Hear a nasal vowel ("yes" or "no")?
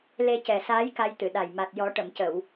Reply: no